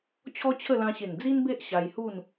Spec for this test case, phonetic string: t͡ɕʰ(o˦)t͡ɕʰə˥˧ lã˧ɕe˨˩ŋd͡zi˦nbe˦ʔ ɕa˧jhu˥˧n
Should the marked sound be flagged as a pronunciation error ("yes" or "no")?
yes